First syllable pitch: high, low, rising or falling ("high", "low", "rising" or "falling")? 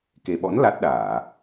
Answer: low